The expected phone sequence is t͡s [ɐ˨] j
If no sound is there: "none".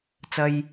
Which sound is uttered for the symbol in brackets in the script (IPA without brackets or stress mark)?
ɐ˥